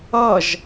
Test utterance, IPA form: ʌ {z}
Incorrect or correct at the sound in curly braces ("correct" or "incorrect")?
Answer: incorrect